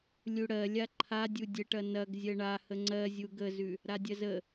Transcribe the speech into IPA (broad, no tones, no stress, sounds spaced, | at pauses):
lʲ u ɽ ɜ lʲ a ǃʰ a dʲ u dʲ ə ʈ ɐ n ɐ ɡ zʲ ɜ ɳ a h ə ŋ͡ǀ ɜ zʲ u ɡ ə z ʉ | ɾ a dʲ ɐ z ə